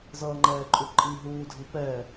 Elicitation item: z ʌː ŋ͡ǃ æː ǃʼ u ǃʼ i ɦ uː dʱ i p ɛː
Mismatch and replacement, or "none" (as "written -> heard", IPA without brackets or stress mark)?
æː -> ɛː